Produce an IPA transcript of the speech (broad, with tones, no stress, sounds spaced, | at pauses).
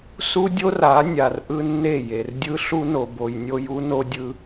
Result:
s u˦ dʲ o˦ r a˨˦ nʲ a˨ r ʔ ɯ˦ nː e˦˨ j e˨ r dʲ ɯ˦ ɬ u˦ n o˨ b o˨ j nʲ o˦ j u˦ n o˦ dʲ ɯ˦